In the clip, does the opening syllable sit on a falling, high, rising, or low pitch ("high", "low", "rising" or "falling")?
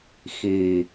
low